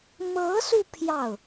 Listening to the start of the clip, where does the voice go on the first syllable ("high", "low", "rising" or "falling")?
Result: rising